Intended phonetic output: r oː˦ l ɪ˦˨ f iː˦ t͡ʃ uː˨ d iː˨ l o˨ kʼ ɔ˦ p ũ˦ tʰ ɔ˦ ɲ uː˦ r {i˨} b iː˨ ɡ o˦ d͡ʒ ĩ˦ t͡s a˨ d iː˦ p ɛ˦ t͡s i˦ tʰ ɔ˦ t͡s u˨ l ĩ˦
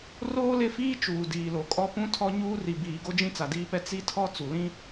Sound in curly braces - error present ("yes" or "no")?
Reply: no